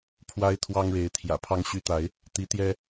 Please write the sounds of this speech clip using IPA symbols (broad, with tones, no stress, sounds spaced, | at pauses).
pʰ w a˦ ɪ̯ t̪ʰ w ɑ˦ ŋ ɻ e˨˦ ɪ̯ t̪ʰ j ä̰˨˩ pʰ ɑ˦ ŋ ɕ y˦ t̪ a˨˦ ɪ̯ | t̪ i˨˦ t̪ j ɛ˦